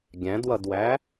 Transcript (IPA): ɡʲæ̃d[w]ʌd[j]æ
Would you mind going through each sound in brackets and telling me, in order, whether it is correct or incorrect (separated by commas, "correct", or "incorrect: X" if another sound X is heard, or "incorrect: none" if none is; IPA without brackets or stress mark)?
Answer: correct, incorrect: w